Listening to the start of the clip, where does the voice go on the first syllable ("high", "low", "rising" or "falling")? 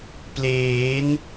rising